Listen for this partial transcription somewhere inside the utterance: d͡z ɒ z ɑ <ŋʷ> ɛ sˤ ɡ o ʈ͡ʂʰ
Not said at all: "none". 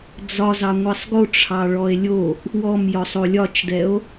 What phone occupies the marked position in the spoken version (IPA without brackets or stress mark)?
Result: ŋʷ